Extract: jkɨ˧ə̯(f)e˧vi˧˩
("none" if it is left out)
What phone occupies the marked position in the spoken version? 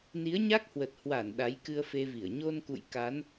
f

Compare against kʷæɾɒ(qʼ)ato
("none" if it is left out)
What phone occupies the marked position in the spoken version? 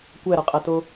qʼ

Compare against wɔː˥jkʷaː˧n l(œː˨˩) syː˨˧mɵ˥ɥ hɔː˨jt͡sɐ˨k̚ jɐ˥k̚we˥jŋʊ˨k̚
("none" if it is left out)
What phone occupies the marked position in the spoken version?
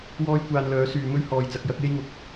œː˨˥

